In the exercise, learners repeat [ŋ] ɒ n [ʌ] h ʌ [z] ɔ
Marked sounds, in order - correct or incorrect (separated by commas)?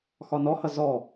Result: incorrect, incorrect, correct